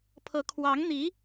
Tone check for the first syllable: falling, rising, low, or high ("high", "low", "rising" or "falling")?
rising